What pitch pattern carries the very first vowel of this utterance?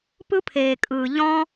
high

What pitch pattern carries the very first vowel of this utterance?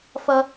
high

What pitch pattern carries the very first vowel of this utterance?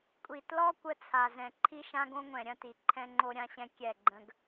low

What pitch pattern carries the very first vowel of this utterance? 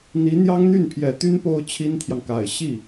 rising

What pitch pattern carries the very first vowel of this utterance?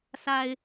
low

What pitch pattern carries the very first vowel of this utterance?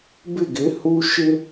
falling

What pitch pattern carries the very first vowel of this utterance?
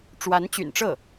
rising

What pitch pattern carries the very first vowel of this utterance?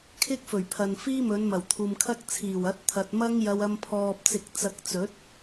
high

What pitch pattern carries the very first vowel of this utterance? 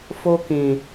high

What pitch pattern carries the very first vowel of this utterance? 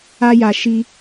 high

